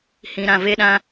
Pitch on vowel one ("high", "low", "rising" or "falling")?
low